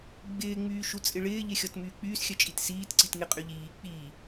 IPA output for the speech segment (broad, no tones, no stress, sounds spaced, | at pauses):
ɡ͡b ɪː ŋ͡m yː ʃ u t͡sʼ ɪ ɭ ɪː ʎ ɪ xʲ ɔ t m yː k͡p yː s xʲ œ t͡ʃʼ i t s iː t ǀ i t ŋ ɪ qʼ y ʎ iː k͡p iː